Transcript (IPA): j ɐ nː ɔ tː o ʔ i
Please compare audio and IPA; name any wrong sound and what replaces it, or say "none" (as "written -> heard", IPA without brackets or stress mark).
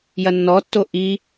none